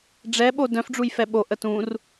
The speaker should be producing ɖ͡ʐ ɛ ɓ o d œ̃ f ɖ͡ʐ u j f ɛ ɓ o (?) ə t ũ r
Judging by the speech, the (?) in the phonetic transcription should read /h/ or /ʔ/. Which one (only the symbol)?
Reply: ʔ